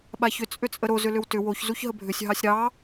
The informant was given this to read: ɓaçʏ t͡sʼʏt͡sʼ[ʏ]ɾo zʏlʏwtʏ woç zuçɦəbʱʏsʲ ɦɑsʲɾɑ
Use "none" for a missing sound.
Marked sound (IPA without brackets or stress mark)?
ə